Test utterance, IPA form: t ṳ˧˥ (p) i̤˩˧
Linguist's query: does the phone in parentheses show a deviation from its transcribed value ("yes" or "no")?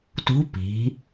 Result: no